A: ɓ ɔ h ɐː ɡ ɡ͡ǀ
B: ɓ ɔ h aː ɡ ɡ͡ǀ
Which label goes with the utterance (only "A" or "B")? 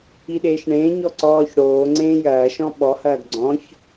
A